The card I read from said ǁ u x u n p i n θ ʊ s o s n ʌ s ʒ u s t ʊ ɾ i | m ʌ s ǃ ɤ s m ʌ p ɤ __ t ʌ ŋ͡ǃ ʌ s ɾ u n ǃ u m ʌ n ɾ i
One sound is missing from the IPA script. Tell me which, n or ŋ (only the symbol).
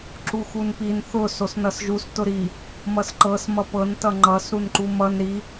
n